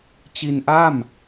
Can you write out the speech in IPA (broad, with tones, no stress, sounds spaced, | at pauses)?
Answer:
t͡ɕ i˧ n ʔ a˥˩ m